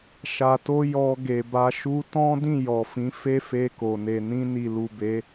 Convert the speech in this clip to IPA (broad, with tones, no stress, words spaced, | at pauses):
ʃa˨to˧ jɔ˧ɡe˨ba˧ ʃu˧tɔ̃˦ dĩ˦˨ jɔ˨fĩ˨˦ fe˦fe˧ko˨ ne˨nĩ˧ni˨lu˨ be˨˦